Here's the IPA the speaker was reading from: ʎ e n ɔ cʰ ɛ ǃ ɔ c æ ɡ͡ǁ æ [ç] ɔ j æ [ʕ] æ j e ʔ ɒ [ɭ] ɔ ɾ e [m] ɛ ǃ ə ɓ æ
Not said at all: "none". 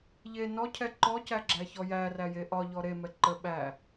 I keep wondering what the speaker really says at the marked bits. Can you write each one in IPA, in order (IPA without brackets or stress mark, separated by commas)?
ç, r, ʎ, m